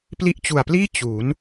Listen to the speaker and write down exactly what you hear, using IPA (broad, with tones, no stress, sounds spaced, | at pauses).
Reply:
p l i˦˥ ʔ t͡ɕ u˨˩ a̯ p l iː˥˩ t͡ɕ u˩˦ n